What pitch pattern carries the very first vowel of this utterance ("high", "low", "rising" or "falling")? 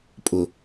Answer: low